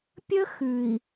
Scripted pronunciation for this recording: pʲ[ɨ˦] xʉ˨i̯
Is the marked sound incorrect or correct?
incorrect